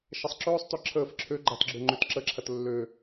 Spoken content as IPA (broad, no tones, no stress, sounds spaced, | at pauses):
ʃ ɐ sˤ ǁ ɵː sˤ t œ ǁʰ əː f ǁʰ ø ɡ͡ǃ a t ɡ͡ǁ ø ŋ͡ǃ ø t ǁ ə ǁʰ ɐ t lː ø